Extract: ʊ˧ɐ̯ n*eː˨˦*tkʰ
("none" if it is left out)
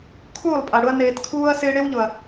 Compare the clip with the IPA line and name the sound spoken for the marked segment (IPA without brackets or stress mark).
eː˨